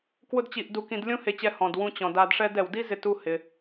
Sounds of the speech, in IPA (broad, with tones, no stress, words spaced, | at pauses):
kwʊ˥dt͡ɕi˧ʔdu˧kĩ˧d lʲũ˥ he˧t͡ɕɛ˧ hɔ̃˩d wũ˧t͡ɕɔ̃˩ da˧dʂɛ˥d ɛ˩wdi˥ zɪ˧tu˧ hɪ˩